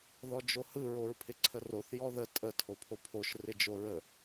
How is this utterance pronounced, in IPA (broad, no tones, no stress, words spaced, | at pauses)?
ðɔd͡ʒohɯ ɹoɹpʰɪǀʰəroθ jɔðə tʼə tʰopʰopʰoʃ rɪd͡ʒoɹə